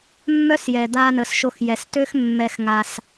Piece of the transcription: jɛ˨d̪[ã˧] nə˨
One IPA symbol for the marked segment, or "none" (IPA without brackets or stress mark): a˧